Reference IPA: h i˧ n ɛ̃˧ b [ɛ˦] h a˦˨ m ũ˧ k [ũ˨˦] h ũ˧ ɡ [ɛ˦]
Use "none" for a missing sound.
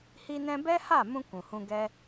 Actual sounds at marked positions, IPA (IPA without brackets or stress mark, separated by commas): ɛ˦, ũ˨, ɛ˦